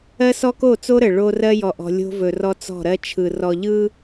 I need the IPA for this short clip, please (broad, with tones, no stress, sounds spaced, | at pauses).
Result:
ɜ˦ s ɔ˦ k o˦˨ t͡s o˦ ɾ ə˨ ɭ o˦ r ɜ˦ j ɔ˨ ʔ ɔ̤˨ lʲ o̤˦ v ɵ˨ r ɔ˦ t͡s ɔ̤˦˨ ɾ ɜ˦ t͡ʃʰ ɯ˨ r ɔ˨ ʎ ɯ˦